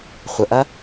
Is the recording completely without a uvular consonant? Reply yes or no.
no